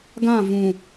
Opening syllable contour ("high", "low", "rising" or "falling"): falling